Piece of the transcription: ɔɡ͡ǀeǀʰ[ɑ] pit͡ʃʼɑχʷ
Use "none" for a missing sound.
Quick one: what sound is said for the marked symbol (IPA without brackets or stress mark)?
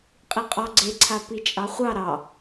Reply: a